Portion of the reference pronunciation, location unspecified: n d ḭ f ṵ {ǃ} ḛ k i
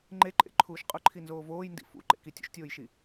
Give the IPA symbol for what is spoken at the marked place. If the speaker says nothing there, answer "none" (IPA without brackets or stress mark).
ǃ